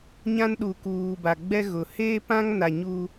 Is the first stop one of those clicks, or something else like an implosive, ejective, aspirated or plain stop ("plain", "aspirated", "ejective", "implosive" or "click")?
implosive